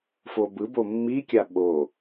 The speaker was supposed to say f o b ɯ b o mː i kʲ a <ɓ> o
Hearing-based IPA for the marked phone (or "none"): ɓ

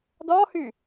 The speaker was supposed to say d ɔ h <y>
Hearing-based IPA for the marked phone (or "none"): y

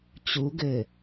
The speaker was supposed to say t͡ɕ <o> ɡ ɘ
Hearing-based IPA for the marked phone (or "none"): u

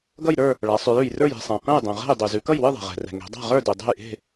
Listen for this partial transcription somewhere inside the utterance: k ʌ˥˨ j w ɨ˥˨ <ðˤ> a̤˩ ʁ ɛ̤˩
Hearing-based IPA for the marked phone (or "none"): ðˤ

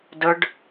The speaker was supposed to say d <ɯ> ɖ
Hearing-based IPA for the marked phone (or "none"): ə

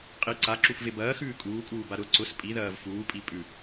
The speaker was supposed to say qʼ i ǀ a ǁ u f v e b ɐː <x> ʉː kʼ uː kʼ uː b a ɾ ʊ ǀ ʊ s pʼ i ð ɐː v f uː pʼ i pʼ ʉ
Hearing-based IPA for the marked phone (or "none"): x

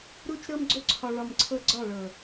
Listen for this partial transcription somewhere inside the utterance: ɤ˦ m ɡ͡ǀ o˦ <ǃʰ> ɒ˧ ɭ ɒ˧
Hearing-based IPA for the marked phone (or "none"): ǀʰ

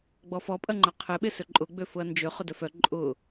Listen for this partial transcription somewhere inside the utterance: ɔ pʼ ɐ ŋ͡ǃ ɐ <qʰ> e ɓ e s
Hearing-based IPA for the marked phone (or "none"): qʰ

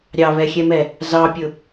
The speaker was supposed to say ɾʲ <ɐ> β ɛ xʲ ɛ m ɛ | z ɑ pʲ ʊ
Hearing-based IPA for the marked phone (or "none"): ɑ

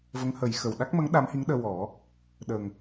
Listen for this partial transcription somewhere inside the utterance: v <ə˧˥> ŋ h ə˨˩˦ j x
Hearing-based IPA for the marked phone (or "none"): ə˧˥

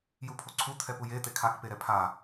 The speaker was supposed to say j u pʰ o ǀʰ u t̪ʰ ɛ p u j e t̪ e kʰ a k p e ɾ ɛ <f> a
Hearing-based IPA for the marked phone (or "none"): pʰ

